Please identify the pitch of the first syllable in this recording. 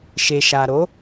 low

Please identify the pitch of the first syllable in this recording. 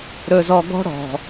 low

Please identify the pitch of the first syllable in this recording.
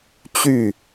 falling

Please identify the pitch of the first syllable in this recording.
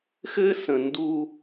high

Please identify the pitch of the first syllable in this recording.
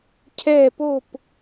falling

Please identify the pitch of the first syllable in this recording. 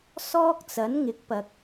high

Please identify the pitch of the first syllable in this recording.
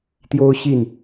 high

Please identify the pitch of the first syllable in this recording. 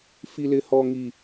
low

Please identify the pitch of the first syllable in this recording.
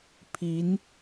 rising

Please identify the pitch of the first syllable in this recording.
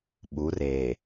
rising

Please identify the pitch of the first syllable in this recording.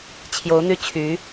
rising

